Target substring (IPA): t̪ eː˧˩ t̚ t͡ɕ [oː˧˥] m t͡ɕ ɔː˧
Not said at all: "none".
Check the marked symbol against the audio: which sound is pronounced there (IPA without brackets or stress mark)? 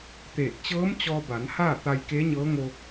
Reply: ɤː˧˥